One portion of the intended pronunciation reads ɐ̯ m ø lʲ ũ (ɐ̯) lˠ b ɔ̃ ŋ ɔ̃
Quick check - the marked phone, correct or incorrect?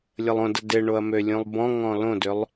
incorrect